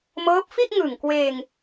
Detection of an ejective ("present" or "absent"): absent